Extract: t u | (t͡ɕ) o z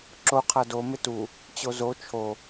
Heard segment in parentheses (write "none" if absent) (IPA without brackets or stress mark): t͡ɕ